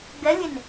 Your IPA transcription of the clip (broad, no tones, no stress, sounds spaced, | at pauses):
ɡ ɛ lʲ e n